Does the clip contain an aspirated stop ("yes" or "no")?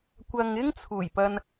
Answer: yes